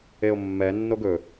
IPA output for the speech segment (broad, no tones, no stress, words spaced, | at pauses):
eo̯mːɛnːoɡ ɵ